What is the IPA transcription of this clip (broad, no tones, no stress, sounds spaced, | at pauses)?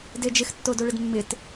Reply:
d e d͡ʒ ɪ x tː o d o ɭ ɪ d mː ɪ t